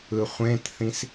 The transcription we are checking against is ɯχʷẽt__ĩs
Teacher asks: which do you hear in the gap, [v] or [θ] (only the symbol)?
θ